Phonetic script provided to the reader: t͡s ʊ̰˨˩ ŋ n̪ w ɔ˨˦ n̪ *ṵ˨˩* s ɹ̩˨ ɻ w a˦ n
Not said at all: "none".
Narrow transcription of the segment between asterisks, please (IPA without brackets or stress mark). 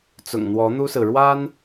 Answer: u˦